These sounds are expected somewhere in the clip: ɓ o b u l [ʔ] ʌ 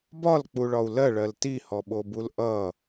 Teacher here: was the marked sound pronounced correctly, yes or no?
yes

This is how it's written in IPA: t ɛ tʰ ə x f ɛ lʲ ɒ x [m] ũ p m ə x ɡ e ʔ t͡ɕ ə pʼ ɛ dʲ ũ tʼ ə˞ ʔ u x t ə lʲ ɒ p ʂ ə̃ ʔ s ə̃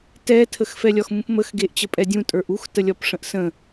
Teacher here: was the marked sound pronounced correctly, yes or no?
yes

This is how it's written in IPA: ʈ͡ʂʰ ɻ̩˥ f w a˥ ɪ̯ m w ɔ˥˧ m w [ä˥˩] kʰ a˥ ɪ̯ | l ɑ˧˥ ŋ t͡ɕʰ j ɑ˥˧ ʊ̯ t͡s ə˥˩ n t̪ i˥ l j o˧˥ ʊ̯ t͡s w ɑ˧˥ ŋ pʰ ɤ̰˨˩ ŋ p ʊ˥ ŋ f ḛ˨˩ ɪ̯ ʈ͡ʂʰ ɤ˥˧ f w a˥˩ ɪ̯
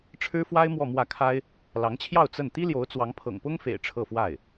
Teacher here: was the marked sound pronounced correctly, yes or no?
yes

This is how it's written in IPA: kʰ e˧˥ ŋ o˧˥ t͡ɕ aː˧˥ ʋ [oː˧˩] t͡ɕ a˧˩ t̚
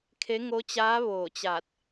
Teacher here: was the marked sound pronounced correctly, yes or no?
yes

